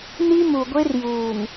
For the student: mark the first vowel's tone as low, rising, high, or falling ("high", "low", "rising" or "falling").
high